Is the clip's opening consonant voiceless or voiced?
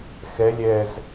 voiceless